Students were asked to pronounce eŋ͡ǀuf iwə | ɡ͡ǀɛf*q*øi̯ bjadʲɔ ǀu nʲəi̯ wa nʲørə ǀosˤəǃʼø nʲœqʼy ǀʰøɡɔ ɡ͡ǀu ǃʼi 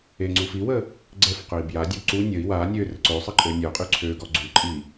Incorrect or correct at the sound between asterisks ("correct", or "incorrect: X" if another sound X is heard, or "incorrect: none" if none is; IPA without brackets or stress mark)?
correct